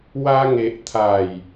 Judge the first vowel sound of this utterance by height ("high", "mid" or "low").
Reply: low